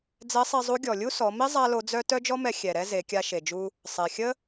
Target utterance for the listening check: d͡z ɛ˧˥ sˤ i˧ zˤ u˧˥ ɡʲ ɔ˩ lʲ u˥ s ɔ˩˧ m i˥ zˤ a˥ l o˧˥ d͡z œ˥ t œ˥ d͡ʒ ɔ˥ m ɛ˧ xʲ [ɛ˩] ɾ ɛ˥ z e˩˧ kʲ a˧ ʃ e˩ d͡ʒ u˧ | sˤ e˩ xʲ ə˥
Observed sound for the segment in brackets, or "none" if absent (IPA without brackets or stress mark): ɛ˩